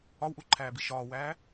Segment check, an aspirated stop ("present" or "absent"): present